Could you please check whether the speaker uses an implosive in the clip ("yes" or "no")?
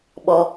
yes